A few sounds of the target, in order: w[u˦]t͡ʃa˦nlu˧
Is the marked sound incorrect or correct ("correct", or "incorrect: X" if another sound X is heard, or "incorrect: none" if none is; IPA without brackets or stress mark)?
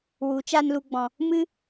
incorrect: u˨˦